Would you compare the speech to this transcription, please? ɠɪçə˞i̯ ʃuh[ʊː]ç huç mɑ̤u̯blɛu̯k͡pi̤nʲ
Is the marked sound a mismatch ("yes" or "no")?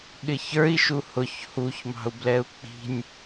yes